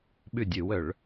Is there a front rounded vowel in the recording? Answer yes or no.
yes